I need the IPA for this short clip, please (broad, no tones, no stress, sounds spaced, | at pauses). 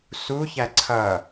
s u ç æ ǀʰ ʌ